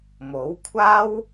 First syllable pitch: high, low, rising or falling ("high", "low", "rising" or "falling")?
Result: rising